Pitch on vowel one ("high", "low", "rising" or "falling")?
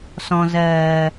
low